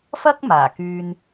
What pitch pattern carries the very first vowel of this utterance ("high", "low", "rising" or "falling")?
high